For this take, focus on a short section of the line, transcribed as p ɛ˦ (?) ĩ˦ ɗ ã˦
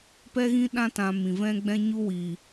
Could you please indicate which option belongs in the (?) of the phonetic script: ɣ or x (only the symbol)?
ɣ